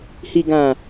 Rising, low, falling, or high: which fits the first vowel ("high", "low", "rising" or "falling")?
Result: low